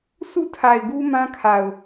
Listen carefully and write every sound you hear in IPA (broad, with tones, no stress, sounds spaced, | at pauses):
s ṵ˦˨ tʰ a˨ ɪ̯ ɡ u˦ m ã˦ kʰ a˨ ʊ̯